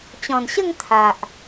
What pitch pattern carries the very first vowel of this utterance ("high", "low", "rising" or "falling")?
low